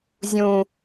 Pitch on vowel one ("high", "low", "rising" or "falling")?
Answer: low